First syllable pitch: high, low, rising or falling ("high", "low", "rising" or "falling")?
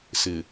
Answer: low